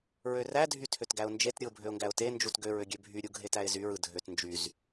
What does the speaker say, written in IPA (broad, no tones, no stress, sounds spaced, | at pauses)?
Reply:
ɹ ø r æ dʱ y tʰ ø t ɡ æ ʊ̯ n d͡ʒ e t ɾʲ ɯ ʊ̯ bʱ ø ʊ̯ ŋ ɡ æ ʊ̯ t e n d͡ʒ u t ɡ ø ɹ ø ɡʲ ø bʱ y ɾʲ u ɡʱ e t æ ɪ̯ z y ɹ ɯ dʱ ø t n d͡ʒ y z